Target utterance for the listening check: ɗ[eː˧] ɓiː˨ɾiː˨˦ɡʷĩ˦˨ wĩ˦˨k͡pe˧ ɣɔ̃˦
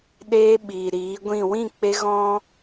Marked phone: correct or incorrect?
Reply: correct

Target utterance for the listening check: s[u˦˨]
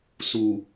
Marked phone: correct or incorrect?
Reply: incorrect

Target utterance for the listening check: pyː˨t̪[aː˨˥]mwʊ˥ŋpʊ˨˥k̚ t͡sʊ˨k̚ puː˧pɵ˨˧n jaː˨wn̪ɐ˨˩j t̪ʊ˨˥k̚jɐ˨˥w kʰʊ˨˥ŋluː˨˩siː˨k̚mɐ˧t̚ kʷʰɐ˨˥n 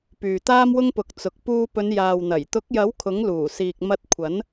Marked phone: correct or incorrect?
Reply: incorrect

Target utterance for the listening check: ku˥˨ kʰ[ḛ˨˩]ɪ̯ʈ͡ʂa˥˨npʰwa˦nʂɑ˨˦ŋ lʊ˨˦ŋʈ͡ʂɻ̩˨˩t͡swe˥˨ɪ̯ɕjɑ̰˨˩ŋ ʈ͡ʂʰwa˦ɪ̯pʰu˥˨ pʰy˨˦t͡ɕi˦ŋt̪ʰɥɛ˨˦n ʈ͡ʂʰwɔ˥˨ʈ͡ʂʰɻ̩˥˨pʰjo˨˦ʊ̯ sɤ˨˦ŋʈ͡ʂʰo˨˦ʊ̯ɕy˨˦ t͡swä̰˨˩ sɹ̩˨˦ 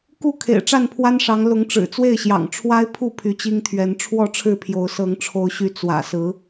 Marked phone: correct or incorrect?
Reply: correct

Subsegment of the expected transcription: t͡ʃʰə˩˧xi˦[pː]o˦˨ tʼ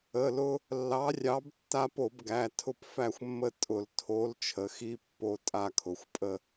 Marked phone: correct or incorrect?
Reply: correct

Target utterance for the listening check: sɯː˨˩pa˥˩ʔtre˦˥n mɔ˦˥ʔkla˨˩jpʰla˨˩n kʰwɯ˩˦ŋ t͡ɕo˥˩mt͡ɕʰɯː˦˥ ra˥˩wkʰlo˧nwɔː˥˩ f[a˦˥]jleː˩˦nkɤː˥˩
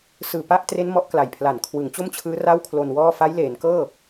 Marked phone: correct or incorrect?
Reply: correct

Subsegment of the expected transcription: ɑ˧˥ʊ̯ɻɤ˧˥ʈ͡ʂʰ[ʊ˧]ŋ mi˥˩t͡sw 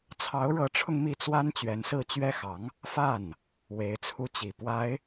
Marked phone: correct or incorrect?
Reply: correct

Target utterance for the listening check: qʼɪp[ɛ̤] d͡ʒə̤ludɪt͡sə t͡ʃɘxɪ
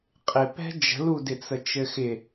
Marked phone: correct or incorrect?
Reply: correct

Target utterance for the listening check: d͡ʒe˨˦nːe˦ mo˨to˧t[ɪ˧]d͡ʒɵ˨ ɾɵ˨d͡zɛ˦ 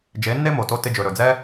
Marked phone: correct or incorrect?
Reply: correct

